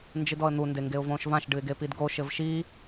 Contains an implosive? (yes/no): no